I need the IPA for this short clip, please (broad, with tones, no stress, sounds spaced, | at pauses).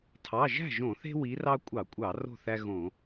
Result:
tʰ ɑ˩˧˩ ʒ æ̤˥˩ ʒ õ˧˩˧ θ e̤˦ w i˨˦ r ɑ˦ kʷʼ ɑ˧˩˧ kʷʼ ɑ˧˩˧ r o̤˥˩ θ æ˦ ɣ õ˧˩˧